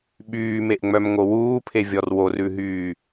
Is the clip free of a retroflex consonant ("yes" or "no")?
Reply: yes